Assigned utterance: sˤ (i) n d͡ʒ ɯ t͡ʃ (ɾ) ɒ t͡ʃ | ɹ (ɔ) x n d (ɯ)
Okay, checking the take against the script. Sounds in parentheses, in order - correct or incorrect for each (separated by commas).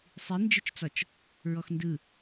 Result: correct, incorrect, correct, correct